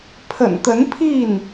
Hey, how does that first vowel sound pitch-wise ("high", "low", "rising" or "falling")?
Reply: low